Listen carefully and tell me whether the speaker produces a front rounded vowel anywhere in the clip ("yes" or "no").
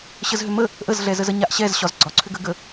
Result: yes